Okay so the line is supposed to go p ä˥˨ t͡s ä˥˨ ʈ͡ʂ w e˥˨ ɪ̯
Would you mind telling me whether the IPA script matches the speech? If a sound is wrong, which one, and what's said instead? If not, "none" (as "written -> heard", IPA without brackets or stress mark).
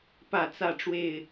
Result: none